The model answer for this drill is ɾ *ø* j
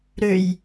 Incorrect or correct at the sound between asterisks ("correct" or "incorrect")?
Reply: correct